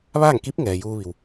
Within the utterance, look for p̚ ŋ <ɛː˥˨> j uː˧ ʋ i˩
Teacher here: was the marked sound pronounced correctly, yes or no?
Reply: no